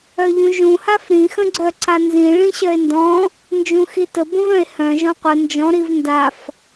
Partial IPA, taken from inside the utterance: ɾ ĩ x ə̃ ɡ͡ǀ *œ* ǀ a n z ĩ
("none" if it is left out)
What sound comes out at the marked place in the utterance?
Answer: œ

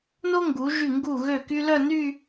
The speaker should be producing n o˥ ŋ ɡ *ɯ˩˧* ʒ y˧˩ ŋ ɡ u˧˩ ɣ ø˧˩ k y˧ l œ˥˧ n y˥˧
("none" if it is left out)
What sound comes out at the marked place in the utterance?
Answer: u˩˧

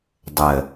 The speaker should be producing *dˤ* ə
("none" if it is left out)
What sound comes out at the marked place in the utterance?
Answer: dˤ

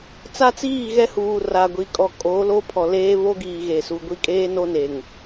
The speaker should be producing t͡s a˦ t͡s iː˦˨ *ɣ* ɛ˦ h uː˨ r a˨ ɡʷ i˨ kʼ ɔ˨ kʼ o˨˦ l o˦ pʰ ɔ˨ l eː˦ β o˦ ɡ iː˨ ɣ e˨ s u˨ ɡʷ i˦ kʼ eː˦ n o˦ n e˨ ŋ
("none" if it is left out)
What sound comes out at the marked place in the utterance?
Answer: ɣ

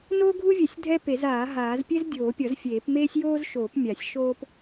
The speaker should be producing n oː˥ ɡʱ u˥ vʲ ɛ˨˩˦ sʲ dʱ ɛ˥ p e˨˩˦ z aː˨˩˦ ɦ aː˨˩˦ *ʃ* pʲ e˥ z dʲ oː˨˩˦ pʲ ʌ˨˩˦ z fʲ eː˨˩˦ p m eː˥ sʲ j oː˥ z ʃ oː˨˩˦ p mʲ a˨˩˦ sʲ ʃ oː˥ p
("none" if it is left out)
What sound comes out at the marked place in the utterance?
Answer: z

